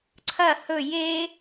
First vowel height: low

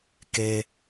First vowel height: mid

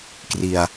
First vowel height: high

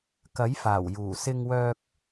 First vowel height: low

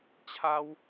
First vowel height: low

